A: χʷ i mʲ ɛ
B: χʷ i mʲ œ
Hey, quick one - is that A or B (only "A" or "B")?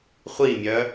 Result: B